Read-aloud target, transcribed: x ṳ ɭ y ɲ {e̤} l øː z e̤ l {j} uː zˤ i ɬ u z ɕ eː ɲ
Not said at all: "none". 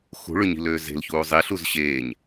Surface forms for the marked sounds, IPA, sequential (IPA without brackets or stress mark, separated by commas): i̤, ç